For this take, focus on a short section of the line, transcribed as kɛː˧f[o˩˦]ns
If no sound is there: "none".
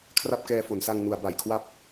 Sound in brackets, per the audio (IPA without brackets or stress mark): o˩˦